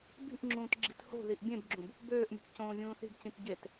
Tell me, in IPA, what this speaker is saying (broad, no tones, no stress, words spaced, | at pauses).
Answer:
bi̤ʔŋ͡ǁũːt ɡ͡ǁi̤tho̤ðiʔ bʲẽbɡ͡ǁũb | bøːʔmʲo̤t cõːvʲũːθi̤bcĩt ɟet